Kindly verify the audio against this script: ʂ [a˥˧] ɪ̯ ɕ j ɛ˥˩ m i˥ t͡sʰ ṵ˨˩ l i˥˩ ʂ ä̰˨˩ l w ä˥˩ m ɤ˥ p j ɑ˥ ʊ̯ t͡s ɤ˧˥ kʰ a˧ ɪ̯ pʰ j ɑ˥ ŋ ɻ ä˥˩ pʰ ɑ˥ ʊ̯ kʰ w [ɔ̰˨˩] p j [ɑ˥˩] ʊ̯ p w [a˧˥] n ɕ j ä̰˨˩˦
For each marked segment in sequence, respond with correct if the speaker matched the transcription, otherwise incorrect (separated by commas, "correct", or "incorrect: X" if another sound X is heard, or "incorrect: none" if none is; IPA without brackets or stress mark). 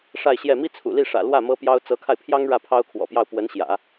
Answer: correct, correct, correct, incorrect: ə˧˥